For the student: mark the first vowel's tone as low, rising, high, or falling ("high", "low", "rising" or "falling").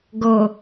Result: low